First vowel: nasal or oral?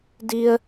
oral